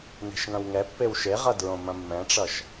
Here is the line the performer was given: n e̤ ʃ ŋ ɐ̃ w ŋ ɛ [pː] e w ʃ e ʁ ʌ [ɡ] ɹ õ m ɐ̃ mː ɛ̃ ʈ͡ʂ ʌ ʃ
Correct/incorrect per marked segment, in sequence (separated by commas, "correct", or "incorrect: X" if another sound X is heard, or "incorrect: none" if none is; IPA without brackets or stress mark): correct, incorrect: d